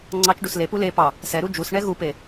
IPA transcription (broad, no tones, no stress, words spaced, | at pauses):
ŋ͡ǀɑt͡ʃɖus lepu le pɑ | sɛɾu d͡ʒusɳɛ ɣupe